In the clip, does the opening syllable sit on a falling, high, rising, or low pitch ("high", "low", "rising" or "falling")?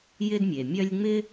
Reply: high